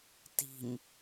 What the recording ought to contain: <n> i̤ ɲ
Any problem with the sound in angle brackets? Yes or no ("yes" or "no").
yes